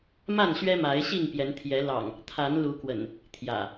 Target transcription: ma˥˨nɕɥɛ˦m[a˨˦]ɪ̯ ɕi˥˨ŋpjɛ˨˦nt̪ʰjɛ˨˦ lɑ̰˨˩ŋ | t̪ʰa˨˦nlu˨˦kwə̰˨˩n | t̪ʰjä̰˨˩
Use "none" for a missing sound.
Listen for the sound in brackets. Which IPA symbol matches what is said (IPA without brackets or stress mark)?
a˨˦